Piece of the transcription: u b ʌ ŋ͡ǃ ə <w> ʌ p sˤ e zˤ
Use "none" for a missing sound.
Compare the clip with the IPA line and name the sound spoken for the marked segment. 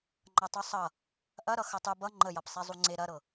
j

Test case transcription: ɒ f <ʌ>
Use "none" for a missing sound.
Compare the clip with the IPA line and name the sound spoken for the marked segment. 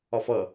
ʌ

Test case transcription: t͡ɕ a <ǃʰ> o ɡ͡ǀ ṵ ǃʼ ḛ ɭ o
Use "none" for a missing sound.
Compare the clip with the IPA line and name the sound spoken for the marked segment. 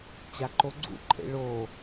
ǃ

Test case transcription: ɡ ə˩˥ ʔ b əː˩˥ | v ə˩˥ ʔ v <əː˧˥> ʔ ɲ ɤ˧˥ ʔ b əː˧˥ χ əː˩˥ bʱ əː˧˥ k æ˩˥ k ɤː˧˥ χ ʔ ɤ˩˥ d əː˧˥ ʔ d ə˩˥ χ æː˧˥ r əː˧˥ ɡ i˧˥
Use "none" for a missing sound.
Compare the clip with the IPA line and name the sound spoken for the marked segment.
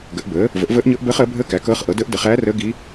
əː˧˥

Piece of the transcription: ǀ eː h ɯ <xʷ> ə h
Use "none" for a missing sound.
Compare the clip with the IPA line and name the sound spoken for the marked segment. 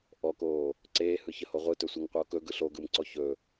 ç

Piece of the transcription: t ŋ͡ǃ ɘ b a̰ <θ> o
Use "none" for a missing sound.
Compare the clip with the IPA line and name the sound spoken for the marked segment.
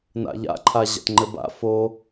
f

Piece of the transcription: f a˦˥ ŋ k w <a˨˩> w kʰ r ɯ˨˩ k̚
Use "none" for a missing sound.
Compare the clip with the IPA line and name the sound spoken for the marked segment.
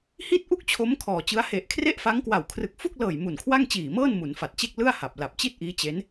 a˨˩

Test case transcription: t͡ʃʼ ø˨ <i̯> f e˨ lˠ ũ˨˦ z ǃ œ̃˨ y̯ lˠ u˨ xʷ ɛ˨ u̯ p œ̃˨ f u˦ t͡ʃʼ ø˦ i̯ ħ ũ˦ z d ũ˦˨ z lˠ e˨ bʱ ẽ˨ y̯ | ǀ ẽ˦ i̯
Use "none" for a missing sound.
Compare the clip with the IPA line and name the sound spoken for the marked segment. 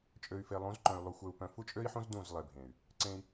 y̯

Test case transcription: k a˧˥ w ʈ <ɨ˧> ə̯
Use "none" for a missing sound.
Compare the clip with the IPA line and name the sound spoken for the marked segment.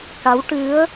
ɨ˧˥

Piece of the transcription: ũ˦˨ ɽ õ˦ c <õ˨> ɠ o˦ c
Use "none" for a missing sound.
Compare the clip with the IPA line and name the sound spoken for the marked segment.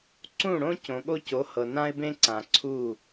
õ˨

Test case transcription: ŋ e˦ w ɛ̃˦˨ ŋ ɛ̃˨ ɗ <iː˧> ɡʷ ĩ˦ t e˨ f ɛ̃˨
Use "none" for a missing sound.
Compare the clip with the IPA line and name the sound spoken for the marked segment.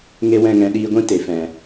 iː˧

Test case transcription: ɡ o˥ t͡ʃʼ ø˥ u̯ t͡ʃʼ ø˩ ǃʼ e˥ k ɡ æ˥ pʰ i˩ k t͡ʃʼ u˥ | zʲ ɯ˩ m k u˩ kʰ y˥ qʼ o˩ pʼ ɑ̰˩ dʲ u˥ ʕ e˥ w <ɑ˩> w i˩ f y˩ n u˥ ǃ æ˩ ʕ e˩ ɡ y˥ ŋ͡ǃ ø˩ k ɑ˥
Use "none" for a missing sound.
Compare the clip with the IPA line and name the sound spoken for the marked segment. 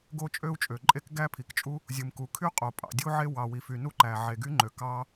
ɑ˩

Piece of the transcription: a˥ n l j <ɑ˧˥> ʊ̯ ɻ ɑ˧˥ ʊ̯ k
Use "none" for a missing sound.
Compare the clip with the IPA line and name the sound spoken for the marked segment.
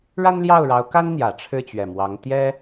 ɑ˥˩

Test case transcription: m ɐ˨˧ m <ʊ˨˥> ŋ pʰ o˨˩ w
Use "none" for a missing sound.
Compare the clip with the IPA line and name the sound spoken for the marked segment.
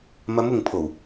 ʊ˨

